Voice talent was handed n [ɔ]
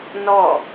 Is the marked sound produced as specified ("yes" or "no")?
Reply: yes